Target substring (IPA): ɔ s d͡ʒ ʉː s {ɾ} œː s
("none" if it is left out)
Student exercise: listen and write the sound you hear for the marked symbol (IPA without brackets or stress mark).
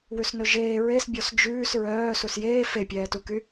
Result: ɹ